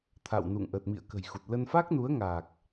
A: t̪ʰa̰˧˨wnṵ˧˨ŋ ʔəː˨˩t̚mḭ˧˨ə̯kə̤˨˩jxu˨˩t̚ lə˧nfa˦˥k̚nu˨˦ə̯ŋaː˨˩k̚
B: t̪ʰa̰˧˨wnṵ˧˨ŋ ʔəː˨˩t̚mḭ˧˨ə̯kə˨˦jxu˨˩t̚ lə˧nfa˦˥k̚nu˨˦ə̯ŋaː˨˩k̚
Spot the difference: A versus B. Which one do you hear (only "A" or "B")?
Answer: A